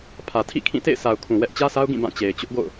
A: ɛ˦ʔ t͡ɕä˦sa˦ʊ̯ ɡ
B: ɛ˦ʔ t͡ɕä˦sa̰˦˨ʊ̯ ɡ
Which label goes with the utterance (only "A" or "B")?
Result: A